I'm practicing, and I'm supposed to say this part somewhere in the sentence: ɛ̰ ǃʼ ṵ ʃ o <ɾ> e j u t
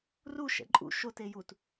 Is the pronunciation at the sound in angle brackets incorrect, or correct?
incorrect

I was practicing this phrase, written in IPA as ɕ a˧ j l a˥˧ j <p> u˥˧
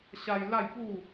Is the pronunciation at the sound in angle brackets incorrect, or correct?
correct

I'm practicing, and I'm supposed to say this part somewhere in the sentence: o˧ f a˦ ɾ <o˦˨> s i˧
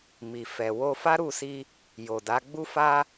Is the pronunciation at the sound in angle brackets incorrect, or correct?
incorrect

